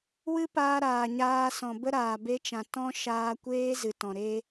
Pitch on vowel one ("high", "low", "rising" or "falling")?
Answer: high